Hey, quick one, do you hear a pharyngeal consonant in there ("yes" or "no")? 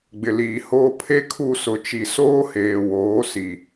no